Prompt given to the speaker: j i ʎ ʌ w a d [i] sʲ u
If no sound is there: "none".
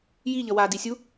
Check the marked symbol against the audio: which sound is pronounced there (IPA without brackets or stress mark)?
i